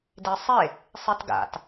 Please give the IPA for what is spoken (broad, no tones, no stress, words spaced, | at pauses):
desˤe | sˤitɡa̰t